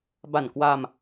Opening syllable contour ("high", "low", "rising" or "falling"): low